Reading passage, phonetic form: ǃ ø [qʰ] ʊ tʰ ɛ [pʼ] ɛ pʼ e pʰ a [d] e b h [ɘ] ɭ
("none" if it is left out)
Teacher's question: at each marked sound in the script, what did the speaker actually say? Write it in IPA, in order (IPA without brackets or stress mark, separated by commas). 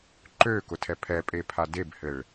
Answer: k, pʰ, d, ɘ